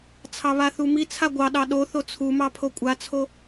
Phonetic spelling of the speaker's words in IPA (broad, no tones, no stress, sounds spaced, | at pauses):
t͡sʰ ɑ β a θ u m i t͡sʰ a ɡʷ ɑ ɗ ɑ ɗ o θ o t͡sʰ u m ɑ pʰ o kʷʼ a t͡sʰ o